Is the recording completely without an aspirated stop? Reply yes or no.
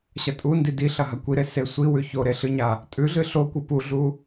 yes